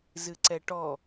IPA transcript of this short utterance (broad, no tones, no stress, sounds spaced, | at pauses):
z ɨ ǀ ɛ ʈ ɔ